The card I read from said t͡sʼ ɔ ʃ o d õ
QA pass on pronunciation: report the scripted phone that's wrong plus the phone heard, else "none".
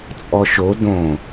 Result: none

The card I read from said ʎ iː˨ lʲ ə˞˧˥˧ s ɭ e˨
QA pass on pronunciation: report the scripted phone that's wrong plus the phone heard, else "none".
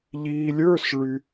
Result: e˨ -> y˨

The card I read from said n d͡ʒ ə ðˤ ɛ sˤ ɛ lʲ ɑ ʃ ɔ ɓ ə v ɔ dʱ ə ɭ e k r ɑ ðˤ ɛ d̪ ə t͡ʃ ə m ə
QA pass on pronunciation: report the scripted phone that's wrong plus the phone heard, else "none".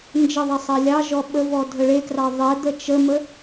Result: ʃ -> ʒ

